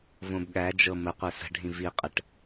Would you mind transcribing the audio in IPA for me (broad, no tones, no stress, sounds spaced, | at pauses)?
v õ b ɠ æ d͡ʒ ɤ m ə qʷ ɛ s ə̤ ɖʱ ĩ v i qʼ ə ʈ